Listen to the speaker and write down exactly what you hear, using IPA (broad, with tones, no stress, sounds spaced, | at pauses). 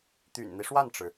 t̪ y̰˨˩ n n̪ i˦ ʂ w a˥˩ n ʈ͡ʂ ɻ̩˩